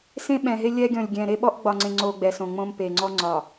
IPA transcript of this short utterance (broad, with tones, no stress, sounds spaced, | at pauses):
s ẽ˦ ɓ ɛ̃˨ ɦ e˦ lʲ ɛ˦ ɡʲ ɔ̃˨ lʲ ɡʲ ɛ̃˨ ɾ e˦ ɓ ɔ˦ ʔ ɡ͡b ɒ˨ ŋ͡ǀ ẽ˨ ŋ͡ǀ o˨ ɡ͡b ɛ˨ s õ˨ ŋ͡m õ˦ m p e˨ ŋ͡ǀ ɔ˦ ŋ͡ǀ ɒ˨